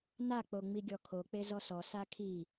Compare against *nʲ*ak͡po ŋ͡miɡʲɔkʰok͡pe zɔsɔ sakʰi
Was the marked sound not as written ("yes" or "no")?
yes